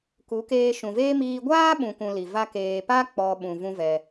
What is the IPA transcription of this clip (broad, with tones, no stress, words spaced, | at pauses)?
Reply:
ku˨˦keː˧ ʃũ˨veː˦ miː˧ɡʷaː˦ ɓũ˧kũ˧li˨ va˧keː˨pa˦ k͡pɔ˧ɓũ˨ vũ˦vɛ˧